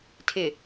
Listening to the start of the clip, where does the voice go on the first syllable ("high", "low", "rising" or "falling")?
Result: low